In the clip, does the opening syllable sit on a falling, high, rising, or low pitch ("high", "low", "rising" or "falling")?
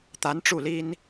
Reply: rising